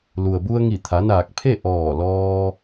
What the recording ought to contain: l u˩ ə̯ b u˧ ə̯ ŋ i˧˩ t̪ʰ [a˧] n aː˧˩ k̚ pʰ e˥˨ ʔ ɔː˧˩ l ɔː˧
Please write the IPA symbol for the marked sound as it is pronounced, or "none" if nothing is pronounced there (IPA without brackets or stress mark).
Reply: a˩˧